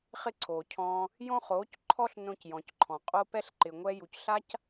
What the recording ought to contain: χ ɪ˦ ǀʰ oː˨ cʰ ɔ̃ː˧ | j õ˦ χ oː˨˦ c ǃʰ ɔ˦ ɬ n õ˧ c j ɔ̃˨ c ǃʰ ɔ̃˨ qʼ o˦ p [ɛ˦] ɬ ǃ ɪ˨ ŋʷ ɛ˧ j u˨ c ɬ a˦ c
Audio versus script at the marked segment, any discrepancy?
no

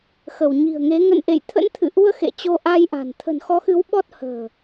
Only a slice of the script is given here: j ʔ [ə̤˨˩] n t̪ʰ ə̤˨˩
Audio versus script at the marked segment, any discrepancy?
yes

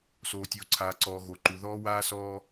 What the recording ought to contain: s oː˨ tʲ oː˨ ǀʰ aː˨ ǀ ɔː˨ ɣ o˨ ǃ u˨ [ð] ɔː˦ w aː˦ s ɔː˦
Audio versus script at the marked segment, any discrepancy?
no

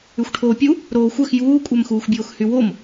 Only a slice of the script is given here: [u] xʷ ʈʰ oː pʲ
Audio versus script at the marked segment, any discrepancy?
yes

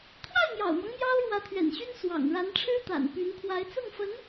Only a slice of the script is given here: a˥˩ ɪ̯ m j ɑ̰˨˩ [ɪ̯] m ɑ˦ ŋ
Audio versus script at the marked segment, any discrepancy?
yes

